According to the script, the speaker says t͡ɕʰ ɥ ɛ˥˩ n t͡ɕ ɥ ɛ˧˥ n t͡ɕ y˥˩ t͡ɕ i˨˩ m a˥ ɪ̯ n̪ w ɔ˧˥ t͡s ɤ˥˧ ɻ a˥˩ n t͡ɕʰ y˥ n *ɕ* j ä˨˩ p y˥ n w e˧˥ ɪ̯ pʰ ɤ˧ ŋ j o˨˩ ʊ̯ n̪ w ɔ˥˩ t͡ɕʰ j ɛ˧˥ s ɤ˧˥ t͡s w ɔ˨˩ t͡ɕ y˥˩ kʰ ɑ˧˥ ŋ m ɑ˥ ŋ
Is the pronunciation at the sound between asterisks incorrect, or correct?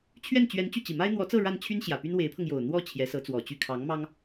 correct